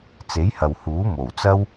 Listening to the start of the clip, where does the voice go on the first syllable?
rising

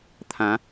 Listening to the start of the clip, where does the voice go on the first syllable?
rising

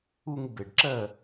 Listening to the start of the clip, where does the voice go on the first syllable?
high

